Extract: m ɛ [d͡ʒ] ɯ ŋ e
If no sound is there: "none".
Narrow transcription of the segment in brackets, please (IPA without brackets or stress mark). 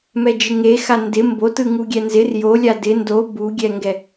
d͡ʒ